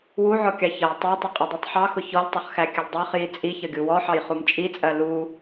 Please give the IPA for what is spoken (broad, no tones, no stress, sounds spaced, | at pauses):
w u ʕ ɔ kʲ ɑ ç ʌ j tˤ ɑ tˤ ʌ qʼ ʊ dˤ i tˤ ħ ɑ x ʊ ç ɔ lʲ tˤ ʌ χ x æ kʲ ə lʲ dˤ æ χ j i t͡sʼ i ç ʌ ɡʲ u w ɔ ħ ɑ j χ u m t͡ʃʼ i t͡sʼ ɜ l u